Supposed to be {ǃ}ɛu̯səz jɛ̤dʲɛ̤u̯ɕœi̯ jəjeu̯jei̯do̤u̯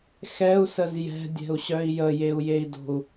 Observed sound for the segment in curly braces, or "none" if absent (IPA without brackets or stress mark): x